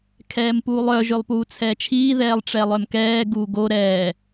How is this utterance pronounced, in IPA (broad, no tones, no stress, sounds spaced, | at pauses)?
kʰ ɛː m p uː lˠ œ ʒ ø lˠ p uː t͡sʰ ɛː t͡ʃʰ iː ð ɛː lˠ ʈ͡ʂ ɛ lˠ œ m k ɛː ɡ uː ɡ o ɾ ɛː